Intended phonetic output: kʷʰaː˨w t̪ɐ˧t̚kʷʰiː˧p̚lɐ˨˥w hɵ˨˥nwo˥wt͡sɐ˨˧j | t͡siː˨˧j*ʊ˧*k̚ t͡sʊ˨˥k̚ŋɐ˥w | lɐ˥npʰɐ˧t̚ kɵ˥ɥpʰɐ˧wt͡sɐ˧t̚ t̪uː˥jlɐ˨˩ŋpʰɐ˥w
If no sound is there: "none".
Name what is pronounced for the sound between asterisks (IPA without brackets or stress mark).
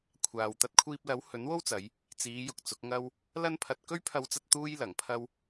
ʊ˨